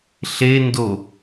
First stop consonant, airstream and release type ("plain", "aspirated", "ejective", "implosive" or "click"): plain